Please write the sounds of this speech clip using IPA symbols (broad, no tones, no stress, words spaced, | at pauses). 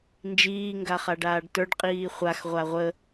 nd͡ʒiːŋɡaχa ɖaːɖtə˞ɖqʼiː χʷax ʁʷaʁʷə